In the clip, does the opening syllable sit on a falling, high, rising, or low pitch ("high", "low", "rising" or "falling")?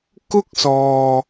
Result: high